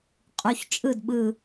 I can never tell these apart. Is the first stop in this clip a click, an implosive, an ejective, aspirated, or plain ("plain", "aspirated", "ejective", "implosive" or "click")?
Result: ejective